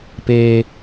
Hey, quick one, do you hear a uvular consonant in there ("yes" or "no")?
no